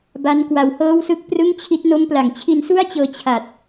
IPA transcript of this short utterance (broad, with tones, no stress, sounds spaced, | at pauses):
b a˦˥ n k w a˧ w h ɤː˥˩ w s ɯ˥˩ k̚ p r ɯ˥˩ ŋ t͡ɕʰ i˦˥ t̚ n o˦˥ m p l a˩˦ ŋ t͡ɕʰ i˧ n s u˥˩ a̯ t͡ɕ ɤː˧ t͡ɕʰ a˨˩ t̚